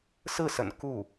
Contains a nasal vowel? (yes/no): no